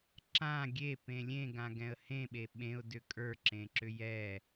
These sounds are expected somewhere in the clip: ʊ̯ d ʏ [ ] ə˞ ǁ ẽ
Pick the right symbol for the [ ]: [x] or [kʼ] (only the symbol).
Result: kʼ